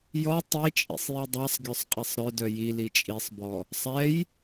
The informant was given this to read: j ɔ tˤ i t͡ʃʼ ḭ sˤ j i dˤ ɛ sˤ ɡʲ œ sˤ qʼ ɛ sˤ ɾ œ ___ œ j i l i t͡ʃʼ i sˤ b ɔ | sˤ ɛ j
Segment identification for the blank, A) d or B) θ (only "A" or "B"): A